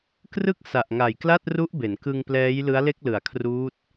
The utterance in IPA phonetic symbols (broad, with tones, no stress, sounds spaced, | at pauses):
k r ɯ˥˩ k̚ s a˨˩ ʔ ŋ a˨˩ j k l a˥˩ t̚ r u˦˥ ʔ b e˩˦ n k ɯ˧ ŋ p l ɛː˦˥ j l ɯ˦˥ a̯ l e˥˩ k̚ l ɯ˨˩ a̯ kʰ r uː˦˥ t̚